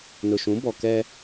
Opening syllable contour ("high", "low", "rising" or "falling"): low